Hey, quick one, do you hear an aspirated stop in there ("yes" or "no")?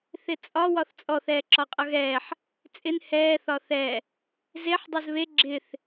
no